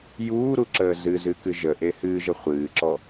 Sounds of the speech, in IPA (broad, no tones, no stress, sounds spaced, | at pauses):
j uː ɾ u ǁ əː z ɨ z ɨ k ɨ ʒ ə ʔ e h ɨː ʒ ə χʷ ɨː ǁ ɔ